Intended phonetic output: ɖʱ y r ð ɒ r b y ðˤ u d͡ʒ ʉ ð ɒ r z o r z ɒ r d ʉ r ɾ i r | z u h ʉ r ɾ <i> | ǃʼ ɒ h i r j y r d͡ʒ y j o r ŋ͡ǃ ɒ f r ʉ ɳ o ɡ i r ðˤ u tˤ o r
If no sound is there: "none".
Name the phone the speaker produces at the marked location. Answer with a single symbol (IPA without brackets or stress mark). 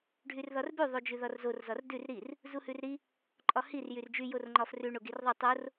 i